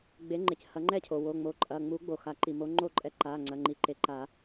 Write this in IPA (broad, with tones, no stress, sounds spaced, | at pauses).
ɡ͡b e˨˦ ŋ͡ǃ e˩ c h ɐ˨˩˦ ŋ͡ǃ ɛ˥˩ cʰ o˩ w o˩˧˩ ŋ͡m o˨˦ ǃʼ ɐ˩˧˩ ŋ͡m u˨˩˦ ɡ͡b o˩ x a˨˩˦ ǃ i˩ m o˨˦ ŋ͡ǃ o˥˩ ǃʼ ɛ˨˦ ǃ a˩˧˩ ŋ͡ǀ ɐ˩˧˩ ŋ͡ǃ i˩˧˩ ǃ e˩˧˩ ǃ a˨˩˦